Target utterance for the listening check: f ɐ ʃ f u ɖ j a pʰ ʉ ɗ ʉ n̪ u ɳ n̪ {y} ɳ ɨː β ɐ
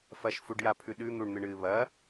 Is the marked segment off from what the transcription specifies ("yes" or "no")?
yes